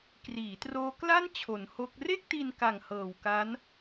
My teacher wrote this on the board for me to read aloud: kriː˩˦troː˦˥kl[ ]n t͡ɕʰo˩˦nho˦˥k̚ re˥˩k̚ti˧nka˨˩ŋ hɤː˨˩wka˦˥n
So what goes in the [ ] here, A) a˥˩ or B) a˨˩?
A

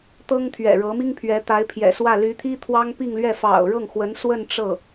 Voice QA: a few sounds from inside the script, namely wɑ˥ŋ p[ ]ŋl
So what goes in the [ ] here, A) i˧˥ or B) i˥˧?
B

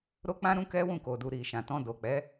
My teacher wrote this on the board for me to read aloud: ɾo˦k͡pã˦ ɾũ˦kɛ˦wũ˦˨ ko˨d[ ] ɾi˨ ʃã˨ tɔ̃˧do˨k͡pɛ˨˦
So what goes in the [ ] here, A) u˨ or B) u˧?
A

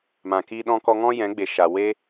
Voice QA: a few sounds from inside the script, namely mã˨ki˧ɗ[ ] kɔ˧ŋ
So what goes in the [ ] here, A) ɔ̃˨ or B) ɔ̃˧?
B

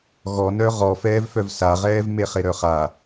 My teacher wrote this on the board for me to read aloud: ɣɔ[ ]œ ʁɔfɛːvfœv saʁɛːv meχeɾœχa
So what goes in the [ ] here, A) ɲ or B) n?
B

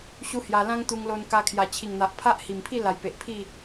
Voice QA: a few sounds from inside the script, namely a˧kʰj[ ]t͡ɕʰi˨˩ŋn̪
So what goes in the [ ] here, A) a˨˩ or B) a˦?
A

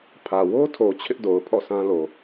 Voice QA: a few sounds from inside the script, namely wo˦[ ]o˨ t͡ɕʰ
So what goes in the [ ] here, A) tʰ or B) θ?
A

